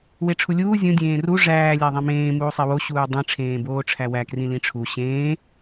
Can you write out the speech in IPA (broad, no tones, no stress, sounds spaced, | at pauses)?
w e ʈ͡ʂʰ u lʲ uː zʲ ũ dʲ ẽː r u ʐ æː lʲ æ ðˤ ĩ m ẽː m uː sˤ e w o ɕ uː dˤ ĩ ʈ͡ʂʰ ẽː b oː ʈ͡ʂʰ æ w æ k r ĩ l ĩ ʈ͡ʂʰ u ɕ ẽː